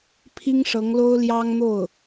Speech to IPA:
pʰ i˥ ŋ ʂ ɤ˧˥ ŋ l o˥ ʊ̯ l j ɑ˥ ŋ n̪ o˥˩ ʊ̯

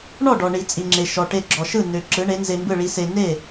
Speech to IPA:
ɳ ɔ˥˩ ɖ ɔ˩ ɳ i˩ t͡sʼ i˩ ŋ͡ǁ e˩ ʃ ɔ˩ ʈ e˧ ɡ͡ǁ ɔ˩ ʃ ɯ˥˩ n ø˩ ǁ ɯ˩˥ ɳ e˩˥ n z e˧ m b ɯ˥˩ ɭ i˧ s e˧ n e˥˩

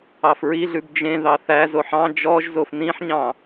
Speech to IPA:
ɑ f ɹ i ɮ ʉ b d͡ʒ ẽ ð ɑ θ æ z o ħ ɑ̃ d͡ʒ ɔ ʒ z o f n ĩ ħ ɲ ɑ̃

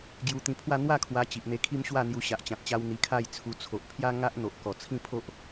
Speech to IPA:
ɡ j u˧ t̪ ĩ˧ pʰ w a˥˧ n̪ w a˥˧ kʰ w a˧ t͡ɕ i˨ ʔ n̪ e˧ kʰ i˦ m ɕ w a˥˧ n̪ j u˧ ɕ a˨ ʔ t͡ɕ ã˨ t̚ t͡ɕ a˧ w n̪ i˧ kʰ a˥˧ j t͡sʰ u˧ t͡sʰ o˨ ʔ pʰ j a˦ ŋ a˦ ʔ n̪ o˨ ʔ k ɔ˨˩ t͡sʰ ĩ˥˧ pʰ o˦ ʔ

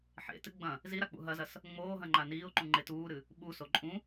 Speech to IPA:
ħ ḛ t ɨ ɡ͡b ɐ̃ | z i ɾ a k͡p ṵ ɦ ɐ z ɐ s | ŋ͡m oː ɦ ɐ̃ ŋ͡ǃ a n iː ʊ̯ ǃ ũ ŋ͡ǃ e t uː ɾ ɨ | ɓ u s o ǃʼ ũ

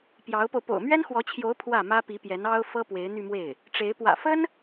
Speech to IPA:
p j ɑ˧˥ ʊ̯ p o˧ ʊ̯ p o̰˨˩ ʊ̯ m ɥ ɛ˥ n x w ɔ˧˥ t͡ɕʰ j o˧˥ ʊ̯ pʰ w ä˥˩ m ä˥ p i˧˥ p j ɛ˧˥ n ɑ˥ ʊ̯ f ɤ˥ p w e˧˥ ɪ̯ n̪ y˥˧ m w e˥˩ ɪ̯ | ʈ͡ʂ e˧˥ ɪ̯ p w ä̰˨˩ f ə˥ n

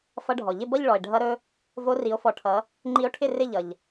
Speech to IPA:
f ʌ˦˥ ɖʱ ɔ˩ ʎ ɪ˥˧ b ʌ˥˧ ʎ ɭ ɔ˩ e̯ ɖʱ ʌ˦˥ ɾ ɵ˦˥ | v o˦˥ r i˨˦ o̯ f ɔ˨˦ ʈʰ ʌ˨˦ | ŋ͡ǃ i˦˥ o̯ ʈʰ ɪ˥˧ r ɪ˥˧ ʎ ʌ˩ ʎ

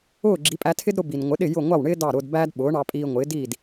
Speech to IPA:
ʊː˥˩ ɡ͡ǁ i˩˥ pʼ æ˧ tʰ ɪ˥ d ɾ ʊ˧ b i˩ n ŋʷ ɪ˩˥ ɗ ɪ˥˩ j ʊ˥˩ ŋʷ ɑ˥˩ w ɳ ɪː˥ d ɑ˥˩ ɾ ʊː˧ d b æː˥ d ɓ ʊː˩˥ ɳ ɑ˧ pʼ iː˧ ŋʷ ɪː˩˥ d i˥˩ d

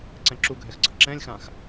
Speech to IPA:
ǀ ɛ̃ ǁ u ɡʱ ɛ x ɡ͡ǀ əː ǁ ɛ̃ lʲ x ã x

